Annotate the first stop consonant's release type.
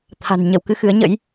aspirated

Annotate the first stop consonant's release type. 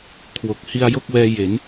aspirated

